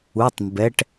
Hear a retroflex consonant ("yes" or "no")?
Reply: yes